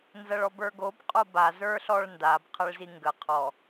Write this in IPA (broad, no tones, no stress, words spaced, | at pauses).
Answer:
nzɐɭɔbə˞ɡob qʼoba zə˞ɬɔɭndab qʰɐɭziŋɡə qʰɔ